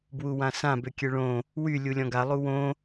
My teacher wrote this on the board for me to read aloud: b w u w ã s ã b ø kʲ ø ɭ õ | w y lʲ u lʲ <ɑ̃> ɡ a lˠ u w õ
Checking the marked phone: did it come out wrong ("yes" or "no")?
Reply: yes